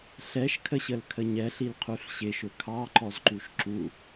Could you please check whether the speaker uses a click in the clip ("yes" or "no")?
yes